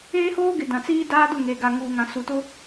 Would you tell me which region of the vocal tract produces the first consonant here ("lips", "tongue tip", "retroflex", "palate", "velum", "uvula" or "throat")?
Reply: throat